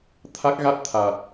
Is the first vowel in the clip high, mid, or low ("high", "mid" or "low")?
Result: low